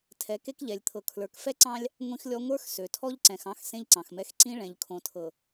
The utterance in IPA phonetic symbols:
tʰ ɛ˨˦ k e˦ k ʎ ɛ˨ lʲ t̪ʰ ɤ˨ kʰ l ə˞˨ k f ɛ˦ ǀ ɑ̃˦ lʲ | ŋʷ ĩ˦ x lʲ ɔ˦ ŋʷ ə˞˦ x s ø˨ tʰ ɔ˦ ʎ ǀ ɛ̃˨ x ɑ̃˦ x s ẽ˦ ʎ ǀ ɑ̃˨ x m ɛ˦ x ǀ ĩ˦ ɭ ɛ̃˨ ʎ kʰ õ˨ tʰ ɤ˨

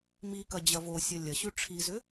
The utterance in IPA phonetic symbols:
m i k ɐ d͡ʑ ɐ v o sʲ ɐ lʲ ɐ ɕ ʉ ʈ͡ʂʰ i z ʏ

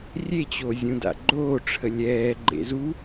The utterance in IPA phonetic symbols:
rʲ e t͡ɕ o zʲ ũ d a̰ ɡ͡ǃ oː ʈ͡ʂʰ ə lʲ ɛː ɡ͡ǃ ḛ z u

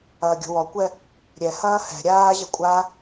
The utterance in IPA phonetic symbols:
ɐː ɡʲ o̤ w ɔ kʷ ɛ | ɾʲ ɛ h ɐː h ɛ̤ ɾʲ aː ʑ ɐ kʷʼ a

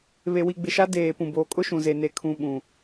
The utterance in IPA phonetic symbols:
β e˨ w i˨ ɡ͡b ɪ˨ ʃ a˦ d eː˨ p ũ˨ b oː˨ kʼ ʊ˦ ʃ ũ˨ z e˨ n e˨ kʰ ũ˨ ɓ ũ˨

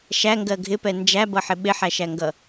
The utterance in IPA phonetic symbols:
ʃ æ ŋ ɡ ɜ ɡʱ ɪ p ɛ n d͡ʒ æ b ʌ ħ ɪ ɓ ɪ ħ æ ʃ æ ŋ ɡ ʌ

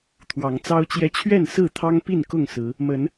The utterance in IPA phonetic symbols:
t̪ʰ w ɑ˨˦ ŋ t͡s ɑ˦ ʊ̯ t͡ɕ j ɛ˦ t͡ɕʰ ɥ ɛ˥˨ n s ɹ̩˥˨ t̪ʰ ɑ˦ ŋ p i˥˨ n k ʊ˥˨ ŋ s ɹ̩˨˦ | m ə˨˦ n

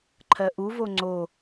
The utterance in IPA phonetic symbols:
ǃʰ ɜ ʔ u v o ŋ͡ǀ o

